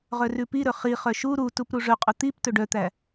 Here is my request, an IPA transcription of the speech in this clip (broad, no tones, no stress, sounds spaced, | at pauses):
ʁ œ r ʉ p i ɾ ɵ χ i χ œ ʃ u ɾ u t u p ɾ u ʐ ɵ qʼ ɵ t̪ i p t ɵ ɖ œ t̪ æ